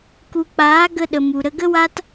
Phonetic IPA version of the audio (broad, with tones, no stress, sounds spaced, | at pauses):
k u˨ k͡p aː˨˦ ɡ ə˧ ɗ ə˨ m u˨ ɾ ə˧ ɡ ə˦ w a˦ t